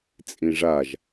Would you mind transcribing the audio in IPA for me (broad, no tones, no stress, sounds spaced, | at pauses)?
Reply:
t͡sʼ ĩ ʐ a ʒ